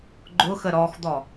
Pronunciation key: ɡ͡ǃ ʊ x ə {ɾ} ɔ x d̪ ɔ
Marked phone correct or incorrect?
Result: correct